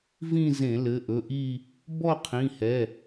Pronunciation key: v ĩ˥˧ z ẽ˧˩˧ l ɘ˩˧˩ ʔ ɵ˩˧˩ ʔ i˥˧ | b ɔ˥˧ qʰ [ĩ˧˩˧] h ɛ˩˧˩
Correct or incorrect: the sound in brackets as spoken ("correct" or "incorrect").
incorrect